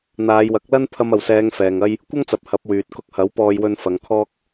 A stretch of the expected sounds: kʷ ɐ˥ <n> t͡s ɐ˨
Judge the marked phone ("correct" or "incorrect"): incorrect